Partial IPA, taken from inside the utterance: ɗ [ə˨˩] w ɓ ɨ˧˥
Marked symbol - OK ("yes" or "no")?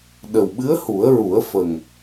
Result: yes